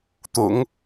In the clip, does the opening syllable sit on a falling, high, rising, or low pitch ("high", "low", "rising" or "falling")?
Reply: low